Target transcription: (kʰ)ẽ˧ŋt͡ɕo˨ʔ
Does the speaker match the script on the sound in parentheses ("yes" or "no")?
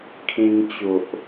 yes